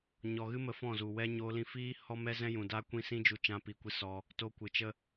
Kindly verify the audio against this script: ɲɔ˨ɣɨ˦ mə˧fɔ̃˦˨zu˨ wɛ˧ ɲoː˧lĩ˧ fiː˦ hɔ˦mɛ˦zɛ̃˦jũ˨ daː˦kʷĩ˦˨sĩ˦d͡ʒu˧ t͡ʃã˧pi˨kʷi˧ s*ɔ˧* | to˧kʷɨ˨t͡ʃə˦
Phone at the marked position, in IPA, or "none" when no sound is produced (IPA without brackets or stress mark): ɔ˧